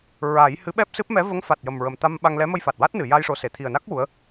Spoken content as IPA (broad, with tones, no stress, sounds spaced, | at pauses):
ɹ aː˨˩˦ j h ɨ˧˥ ɓ ɛ˦˥ p̚ s ɨ˦˥ p̚ m ɛ˧˥ v ə˧˥ ŋ f a˨˩ t̚ j ə˨˩ m ɹ ə˨˩ m t̪ a˧ m ɓ a˧ ŋ l ɛ˧˥ m ə˧ j f a˨˩ t̚ w a˦˥ t̚ n ɨ˨˩˨ j a˧ j ʂ o˨˩ s e˨˩˨ t̪ʰ i˨˩ ə̯ n a˦˥ k̚ w u˧˥ ə̯